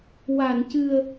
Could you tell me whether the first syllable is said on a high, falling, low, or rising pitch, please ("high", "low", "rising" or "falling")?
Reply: low